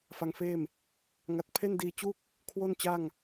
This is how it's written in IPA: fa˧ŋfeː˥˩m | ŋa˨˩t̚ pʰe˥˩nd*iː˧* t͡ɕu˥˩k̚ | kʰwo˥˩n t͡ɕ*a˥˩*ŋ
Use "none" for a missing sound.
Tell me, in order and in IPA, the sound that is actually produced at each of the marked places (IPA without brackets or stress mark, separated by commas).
iː˧, a˥˩